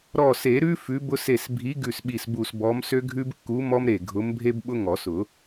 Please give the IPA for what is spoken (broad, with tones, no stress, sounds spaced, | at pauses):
ɾ ɔ˧˩ s e˨˩˦ ɾ ʉ˦ f ʉ˨˥ b ʊ˦ s e˧˩ s bʱ i˨˥ ɡ ʉ˧˩ s ɓ i˧˩ s b u˧˩ s b ɔ˨˥ m s ø˦ ɡʱ ʉ˦ b kː u˨˥ m ɔ˦ m ɾ e˧˩ ɡʱ ʊ˨˥ m bʱ e˦ b ɓ ʊ˦ ŋ ɔ˨˩˦ s ʊ˨˩˦